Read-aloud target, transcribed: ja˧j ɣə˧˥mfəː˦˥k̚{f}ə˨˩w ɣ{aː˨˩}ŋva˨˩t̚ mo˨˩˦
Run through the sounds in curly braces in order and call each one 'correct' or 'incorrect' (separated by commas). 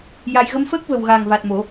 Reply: incorrect, correct